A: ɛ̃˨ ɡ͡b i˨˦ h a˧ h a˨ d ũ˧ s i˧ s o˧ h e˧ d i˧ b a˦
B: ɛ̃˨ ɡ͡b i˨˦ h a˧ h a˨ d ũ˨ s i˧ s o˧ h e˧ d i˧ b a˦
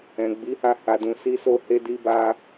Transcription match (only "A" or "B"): B